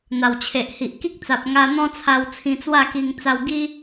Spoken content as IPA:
n̪a˨˩wt͡ɕʰe˨ʔhi˨ʔ ki˦k̚t͡sa˨p̚ŋa˧ n̪ɔ̃˦t͡sʰa˧w t͡sʰĩ˧t͡swa˥˧ki˧ŋ t͡sa˧wɡi˦

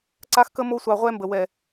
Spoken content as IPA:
ǀa˦xkə˦ mo˦sʷɑ˧ʁʷɛ˦ mbə˨wɛ˨

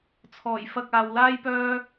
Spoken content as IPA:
t͡sʰɔː˨˩jfɐ˧k̚ aː˨wlaː˥jpœː˥

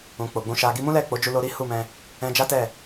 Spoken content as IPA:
ũ˨ k͡po˨ɡ͡bũ˨˦ʃa˧ ɡi˧mũ˦lɛ˦˨ k͡po˨˦d͡ʒu˧lo˧ ɾi˦hu˦˨mɛ̃˧ | ɛ̃˧d͡ʒa˦tɛ˦˨

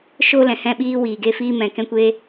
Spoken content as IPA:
ʃo˦ lɛ̃˨hɛ̃˦˨ɓiː˦ wiː˨ɡe˦ fiː˧mɛ̃˨kɛ̃˧kʷeː˧

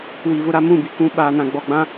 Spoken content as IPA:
wi˨vʊ˦ɾa˦ mũ˦˨bi˨ kũ˦ ɓaː˨nã˨ɡ͡bɔ˨ɡ͡bã˦

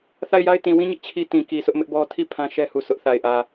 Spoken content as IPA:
θa˦˨ɪ̯ja˦ɪ̯ tĩ˨wĩ˦ɲɪ˦ʔ t͡ɕʰi˦ tĩ˨ki˨sʰʊ˦ʔ mɪ˦ʔbɔ˦ tʰi˦˨ pʰã˦ʃɛ˦hu˨ sʰʊ˦ʔθa˨ɪ̯ ʔä˨

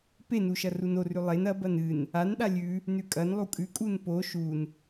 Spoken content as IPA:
penu ʃɐrunorʉ lˠen ɐbɐn ɨn | anɗa lʲʉ | nʉkʼɐnlˠu kʼʉkʼun po ʃun

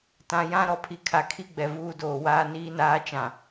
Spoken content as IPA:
tã˨ jã˦ɾɔ˨ pʰi˨kʰa˨kʰi˦ɡ͡bɛ˨ vuː˦doː˨ waː˦ niː˦naː˦ t͡ʃã˨

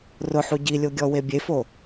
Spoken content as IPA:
rʊħu ɟilʲoɡʲɔwe bʲefo

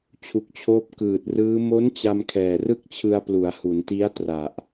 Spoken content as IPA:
t͡ɕʰu˨˩k̚t͡ɕʰoː˦˥p̚ kɯː˨˩t̚rɯː˦˥ mo˦˥n t͡ɕa˧mkʰɛː˨˩ rɯ˥˩k̚t͡ɕʰɯ˧a̯plu˩˦a̯ hu˩˦nti˦˥a̯tra˨˩ʔ

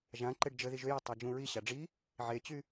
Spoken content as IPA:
ʒãǃeɖ d͡ʒə ðiʒøja tˤad͡ʒũɹiɕa ɖ͡ʐi | ʕet͡ɕy

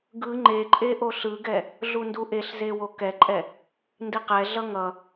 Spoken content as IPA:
ɡɯ ŋ͡ǃeǃʼe ʔoɬɯɡɛ | ɮunduʔeɬze wokɛǃʼɛ | ndiqɛɮʌ ŋʌ

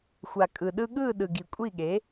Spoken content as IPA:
xʷa˨kʼɯ˨ɗɯ˧ɠɯː˦˨ ɗɯ˨ɡi˨kʷʼi˦˨ɠe˨˦

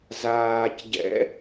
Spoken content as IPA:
zaːcɟɛ̰

